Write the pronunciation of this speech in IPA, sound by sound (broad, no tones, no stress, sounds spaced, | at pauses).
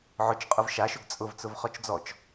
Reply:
ʕ ʊ t͡ʃ qʼ ʊ v ʃ a ʃ ʊ ɡ t͡sʼ ʊ v t͡s ʊ v χ ɔ t͡ʃ d͡z ɔ t͡ʃ